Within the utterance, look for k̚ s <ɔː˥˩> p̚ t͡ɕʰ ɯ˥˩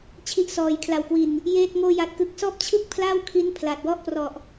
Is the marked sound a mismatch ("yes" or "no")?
no